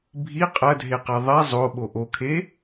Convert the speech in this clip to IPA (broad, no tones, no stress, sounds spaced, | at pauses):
bʱ i qʼ ɐ dʱ e q ɛ ðˤ ɛ zˤ o ɓ o ʔ o kʰ e